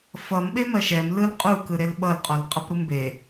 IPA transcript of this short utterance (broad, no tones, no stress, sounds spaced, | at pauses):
f ʌ m ɓ e m ɜ ʃ ɛ m l ɯ l qʼ u k ɯ ɾ e l ɓ ʌ l qʼ ɔ l qʼ ʌ p ɾ u m b e